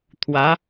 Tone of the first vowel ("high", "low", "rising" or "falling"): rising